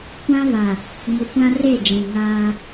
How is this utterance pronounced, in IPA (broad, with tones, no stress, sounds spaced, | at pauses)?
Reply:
kʷ ã˦ β a˨ | ŋ u˨ kʷ ã˦ r e˦˨ d͡ʒ ĩ˨ ŋ aː˦